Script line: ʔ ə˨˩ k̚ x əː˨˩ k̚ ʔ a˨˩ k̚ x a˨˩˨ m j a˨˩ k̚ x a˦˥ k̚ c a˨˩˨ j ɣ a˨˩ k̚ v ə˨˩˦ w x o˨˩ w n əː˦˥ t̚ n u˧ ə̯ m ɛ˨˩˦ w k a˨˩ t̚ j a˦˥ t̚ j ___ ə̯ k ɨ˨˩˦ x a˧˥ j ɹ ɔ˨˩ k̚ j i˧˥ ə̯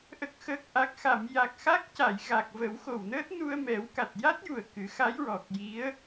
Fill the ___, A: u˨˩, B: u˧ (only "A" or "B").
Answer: A